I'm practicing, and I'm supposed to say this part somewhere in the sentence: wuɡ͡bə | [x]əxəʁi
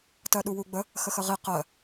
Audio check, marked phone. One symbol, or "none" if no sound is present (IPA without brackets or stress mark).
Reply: x